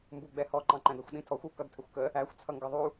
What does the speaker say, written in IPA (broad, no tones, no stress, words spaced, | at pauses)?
mbuɡ͡bɛhɔ ǃɑ̃ǃæ̃dʌxʷ ɗĩtʰɔxʷ u kʌdtʰəxʷkə | æxʷ t͡sʰʌŋɡʌðˤu